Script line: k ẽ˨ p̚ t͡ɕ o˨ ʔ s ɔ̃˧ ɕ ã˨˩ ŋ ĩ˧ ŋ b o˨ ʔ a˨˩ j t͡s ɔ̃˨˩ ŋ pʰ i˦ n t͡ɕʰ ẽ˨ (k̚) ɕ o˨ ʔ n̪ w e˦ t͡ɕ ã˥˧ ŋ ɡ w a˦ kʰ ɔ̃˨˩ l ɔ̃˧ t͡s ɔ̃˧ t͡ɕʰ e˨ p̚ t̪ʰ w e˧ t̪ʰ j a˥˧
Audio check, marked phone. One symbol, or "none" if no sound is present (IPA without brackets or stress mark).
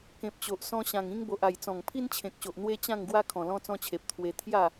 k̚